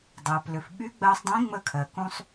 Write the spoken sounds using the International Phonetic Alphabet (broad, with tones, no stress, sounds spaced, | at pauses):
dˤ ɜ˩ p l ʏ˩ f ɓ y˧˥ ɡ͡b ɜ˧ sˤ dˤ ĩ˧˥ ŋ͡m ə˧ kʰ ɜ˩ k ũ˧ sˤ